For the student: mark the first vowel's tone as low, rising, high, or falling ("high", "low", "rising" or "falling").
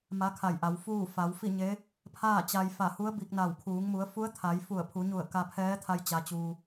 rising